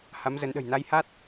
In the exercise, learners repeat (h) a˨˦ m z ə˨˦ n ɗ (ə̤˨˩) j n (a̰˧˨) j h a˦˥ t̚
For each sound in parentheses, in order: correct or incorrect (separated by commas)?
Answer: correct, correct, incorrect